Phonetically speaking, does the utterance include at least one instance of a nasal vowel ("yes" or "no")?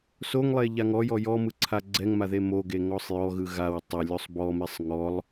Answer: no